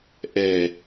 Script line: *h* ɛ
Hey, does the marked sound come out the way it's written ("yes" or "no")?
no